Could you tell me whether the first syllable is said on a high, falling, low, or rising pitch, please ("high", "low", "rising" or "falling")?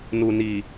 low